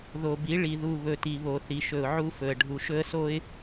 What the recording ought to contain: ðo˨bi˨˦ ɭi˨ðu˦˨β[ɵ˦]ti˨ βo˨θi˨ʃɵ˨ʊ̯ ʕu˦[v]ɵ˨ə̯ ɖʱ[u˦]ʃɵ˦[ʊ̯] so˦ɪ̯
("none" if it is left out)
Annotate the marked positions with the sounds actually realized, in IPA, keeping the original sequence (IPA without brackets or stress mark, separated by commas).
ɵ˨, f, u˨, ə̯